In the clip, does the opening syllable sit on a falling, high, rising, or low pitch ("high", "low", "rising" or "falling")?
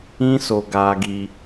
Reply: high